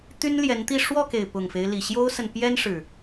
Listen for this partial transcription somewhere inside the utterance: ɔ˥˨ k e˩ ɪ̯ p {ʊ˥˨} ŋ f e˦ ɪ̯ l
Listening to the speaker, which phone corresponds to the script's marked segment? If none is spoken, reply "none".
ʊ˨˩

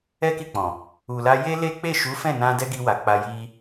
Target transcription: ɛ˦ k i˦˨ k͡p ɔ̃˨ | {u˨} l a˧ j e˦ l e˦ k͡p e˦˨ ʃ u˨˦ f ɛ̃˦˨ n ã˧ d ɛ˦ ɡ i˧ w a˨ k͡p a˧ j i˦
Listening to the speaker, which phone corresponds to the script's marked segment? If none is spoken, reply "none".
u˨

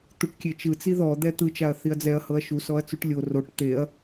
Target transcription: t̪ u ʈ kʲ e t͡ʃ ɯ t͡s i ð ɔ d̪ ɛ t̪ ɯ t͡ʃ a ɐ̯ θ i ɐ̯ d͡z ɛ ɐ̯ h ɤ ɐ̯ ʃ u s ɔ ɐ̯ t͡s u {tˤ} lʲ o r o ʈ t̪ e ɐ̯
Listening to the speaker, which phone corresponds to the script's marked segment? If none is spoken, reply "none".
ʈ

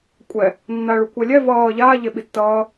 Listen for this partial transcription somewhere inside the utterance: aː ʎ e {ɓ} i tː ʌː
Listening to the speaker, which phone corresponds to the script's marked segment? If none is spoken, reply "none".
ɓ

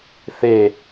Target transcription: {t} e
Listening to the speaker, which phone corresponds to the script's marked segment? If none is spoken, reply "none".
θ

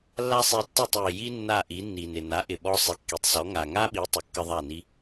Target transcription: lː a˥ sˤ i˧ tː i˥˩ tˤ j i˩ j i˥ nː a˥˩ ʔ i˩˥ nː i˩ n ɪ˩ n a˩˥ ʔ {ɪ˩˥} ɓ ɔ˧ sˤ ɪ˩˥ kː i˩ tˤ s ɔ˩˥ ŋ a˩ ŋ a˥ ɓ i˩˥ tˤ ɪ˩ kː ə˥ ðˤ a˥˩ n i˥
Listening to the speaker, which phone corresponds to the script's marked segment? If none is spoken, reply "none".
ɪ˩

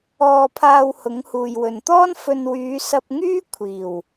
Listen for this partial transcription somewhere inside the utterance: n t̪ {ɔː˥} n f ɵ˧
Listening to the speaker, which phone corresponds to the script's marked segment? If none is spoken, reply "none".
ɔː˥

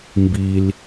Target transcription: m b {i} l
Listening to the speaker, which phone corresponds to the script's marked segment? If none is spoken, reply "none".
i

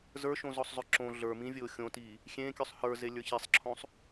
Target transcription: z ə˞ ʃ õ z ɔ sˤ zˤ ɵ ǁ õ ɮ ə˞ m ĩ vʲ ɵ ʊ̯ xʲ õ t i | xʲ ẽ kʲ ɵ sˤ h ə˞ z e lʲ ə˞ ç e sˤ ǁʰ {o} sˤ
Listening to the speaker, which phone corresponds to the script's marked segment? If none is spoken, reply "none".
õ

